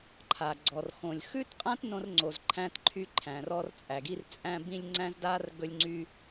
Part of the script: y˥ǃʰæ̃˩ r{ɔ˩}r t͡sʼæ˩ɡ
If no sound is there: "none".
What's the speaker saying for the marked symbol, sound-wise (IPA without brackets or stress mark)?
ɔ˥